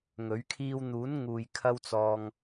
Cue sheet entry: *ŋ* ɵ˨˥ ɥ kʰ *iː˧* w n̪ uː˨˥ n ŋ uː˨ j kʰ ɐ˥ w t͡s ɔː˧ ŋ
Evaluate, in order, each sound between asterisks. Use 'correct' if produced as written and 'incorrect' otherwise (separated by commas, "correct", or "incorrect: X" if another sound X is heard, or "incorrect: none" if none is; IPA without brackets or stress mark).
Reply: correct, correct